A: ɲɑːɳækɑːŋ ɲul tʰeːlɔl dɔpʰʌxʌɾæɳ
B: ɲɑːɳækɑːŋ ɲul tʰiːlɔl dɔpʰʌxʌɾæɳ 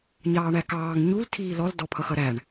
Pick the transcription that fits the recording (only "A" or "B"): B